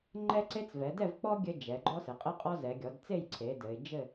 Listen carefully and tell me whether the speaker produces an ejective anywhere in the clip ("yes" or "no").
yes